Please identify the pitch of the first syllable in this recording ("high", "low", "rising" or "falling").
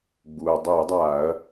low